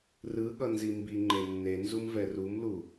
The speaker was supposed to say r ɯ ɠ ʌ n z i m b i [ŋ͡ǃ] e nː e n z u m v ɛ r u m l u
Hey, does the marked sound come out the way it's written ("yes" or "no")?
yes